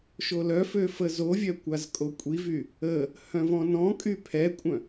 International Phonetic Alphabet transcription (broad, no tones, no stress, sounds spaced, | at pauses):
ʃ o l œ f ø f ə z o vʲ œ kʷ a z kʼ o kʷʼ i v y | ə | h œ̃ v ɔ̃ n ɔ̃ kʼ y pʰ ɛ kʷʼ œ̃